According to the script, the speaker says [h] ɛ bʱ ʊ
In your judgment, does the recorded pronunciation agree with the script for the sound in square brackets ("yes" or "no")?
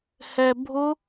yes